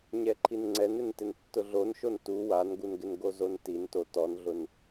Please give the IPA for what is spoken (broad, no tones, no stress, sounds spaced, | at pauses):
ɲ ɛ ǃʰ i n ŋ͡ǀ ɛ n ɪ n t ɪ n tː ʊ ɮ o n ʃ o n t u w a n ɡ u n ɡ ɪ n ɡ o z o n t i n t o t ɔ n ɮ ʊ n